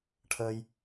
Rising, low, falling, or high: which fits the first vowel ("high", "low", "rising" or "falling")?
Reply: high